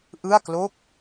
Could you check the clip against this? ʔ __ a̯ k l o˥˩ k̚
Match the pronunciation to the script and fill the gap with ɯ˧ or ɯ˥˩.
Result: ɯ˥˩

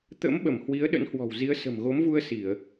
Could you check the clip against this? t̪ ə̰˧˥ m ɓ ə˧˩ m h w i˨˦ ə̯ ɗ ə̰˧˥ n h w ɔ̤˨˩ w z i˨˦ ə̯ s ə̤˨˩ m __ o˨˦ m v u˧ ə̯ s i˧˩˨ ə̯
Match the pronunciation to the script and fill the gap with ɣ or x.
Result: ɣ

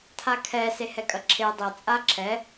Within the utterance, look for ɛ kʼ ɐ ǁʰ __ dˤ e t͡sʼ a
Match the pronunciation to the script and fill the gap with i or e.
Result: e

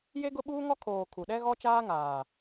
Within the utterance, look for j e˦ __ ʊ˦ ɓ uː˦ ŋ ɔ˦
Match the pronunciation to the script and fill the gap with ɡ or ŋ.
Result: ɡ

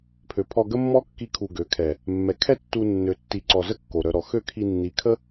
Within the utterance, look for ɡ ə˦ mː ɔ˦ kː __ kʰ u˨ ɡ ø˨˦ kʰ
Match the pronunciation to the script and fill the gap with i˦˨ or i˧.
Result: i˧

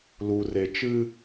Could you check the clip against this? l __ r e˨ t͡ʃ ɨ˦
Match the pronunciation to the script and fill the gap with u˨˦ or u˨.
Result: u˨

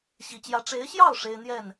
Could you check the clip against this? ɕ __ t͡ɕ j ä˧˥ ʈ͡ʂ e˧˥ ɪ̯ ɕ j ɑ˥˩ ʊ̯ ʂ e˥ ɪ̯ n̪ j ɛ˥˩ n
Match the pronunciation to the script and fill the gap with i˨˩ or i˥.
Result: i˨˩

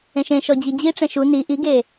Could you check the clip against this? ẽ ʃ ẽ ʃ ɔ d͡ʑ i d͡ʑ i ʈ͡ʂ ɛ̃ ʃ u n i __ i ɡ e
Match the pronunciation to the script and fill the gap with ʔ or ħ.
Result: ʔ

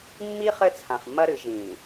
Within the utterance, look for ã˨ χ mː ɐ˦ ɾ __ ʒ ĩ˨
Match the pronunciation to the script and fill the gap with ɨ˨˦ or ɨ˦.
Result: ɨ˨˦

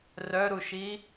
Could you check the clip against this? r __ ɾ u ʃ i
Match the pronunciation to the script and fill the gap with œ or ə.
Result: œ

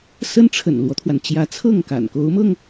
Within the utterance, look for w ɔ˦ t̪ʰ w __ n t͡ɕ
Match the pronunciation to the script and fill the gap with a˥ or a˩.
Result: a˩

